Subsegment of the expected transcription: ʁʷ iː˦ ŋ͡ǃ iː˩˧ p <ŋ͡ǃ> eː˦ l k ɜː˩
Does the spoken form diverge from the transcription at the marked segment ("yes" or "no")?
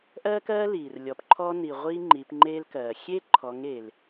no